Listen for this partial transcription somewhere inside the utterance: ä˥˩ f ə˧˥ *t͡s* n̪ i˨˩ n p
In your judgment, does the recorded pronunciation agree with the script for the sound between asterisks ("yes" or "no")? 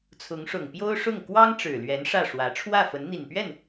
no